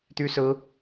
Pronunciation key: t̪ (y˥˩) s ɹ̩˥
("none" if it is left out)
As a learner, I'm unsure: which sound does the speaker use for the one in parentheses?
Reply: y˥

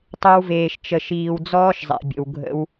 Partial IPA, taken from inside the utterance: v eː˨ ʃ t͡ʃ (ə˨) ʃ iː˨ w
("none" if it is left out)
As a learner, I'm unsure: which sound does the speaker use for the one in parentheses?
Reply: ə˨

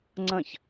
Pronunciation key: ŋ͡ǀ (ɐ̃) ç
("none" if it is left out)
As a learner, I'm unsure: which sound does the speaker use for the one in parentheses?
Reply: ɐ̃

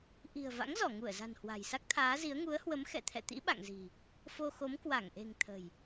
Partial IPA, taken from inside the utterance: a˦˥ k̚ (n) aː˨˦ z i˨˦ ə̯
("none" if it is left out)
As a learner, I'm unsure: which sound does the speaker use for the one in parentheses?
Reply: t̪ʰ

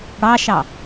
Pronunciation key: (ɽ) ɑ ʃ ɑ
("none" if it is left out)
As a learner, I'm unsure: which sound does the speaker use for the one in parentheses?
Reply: ɽ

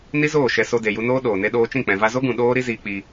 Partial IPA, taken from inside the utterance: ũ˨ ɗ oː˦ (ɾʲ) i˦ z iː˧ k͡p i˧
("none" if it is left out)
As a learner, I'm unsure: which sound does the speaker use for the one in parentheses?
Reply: ɾ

